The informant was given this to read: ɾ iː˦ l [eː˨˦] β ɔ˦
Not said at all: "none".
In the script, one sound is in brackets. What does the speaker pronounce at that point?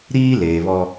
eː˨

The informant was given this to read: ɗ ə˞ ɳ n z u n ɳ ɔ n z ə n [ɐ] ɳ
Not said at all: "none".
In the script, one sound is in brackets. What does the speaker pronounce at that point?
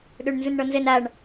a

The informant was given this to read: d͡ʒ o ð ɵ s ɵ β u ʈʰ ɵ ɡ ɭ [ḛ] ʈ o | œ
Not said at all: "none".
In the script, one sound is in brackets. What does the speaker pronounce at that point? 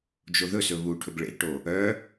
ḛ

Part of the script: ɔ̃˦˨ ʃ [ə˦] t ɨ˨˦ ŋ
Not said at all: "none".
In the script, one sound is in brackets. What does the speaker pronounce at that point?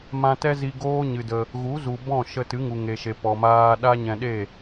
ə˧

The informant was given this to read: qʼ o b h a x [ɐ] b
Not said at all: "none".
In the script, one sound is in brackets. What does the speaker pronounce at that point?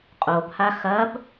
ɐ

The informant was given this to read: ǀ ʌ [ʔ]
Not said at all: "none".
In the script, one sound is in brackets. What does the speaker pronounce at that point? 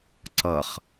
χ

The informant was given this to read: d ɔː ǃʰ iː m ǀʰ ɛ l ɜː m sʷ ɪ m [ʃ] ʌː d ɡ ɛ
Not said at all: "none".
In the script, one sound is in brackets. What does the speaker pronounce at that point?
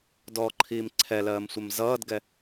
z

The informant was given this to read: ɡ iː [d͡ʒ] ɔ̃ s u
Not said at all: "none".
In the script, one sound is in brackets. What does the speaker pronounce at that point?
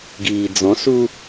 d͡z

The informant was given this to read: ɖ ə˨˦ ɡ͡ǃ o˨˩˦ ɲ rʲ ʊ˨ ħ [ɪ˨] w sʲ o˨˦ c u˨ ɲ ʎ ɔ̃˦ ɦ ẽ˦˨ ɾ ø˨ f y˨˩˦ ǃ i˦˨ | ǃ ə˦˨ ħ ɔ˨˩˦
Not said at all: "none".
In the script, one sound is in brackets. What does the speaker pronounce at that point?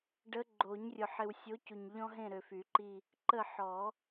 ɪ˨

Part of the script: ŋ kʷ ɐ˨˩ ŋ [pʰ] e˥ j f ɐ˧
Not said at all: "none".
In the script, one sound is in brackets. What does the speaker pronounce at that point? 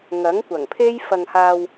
pʰ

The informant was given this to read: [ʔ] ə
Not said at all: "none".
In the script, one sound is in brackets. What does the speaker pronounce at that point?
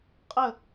qʼ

